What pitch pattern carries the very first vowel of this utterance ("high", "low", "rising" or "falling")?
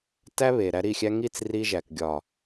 high